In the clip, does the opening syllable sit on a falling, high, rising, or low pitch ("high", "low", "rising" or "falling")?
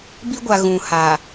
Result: high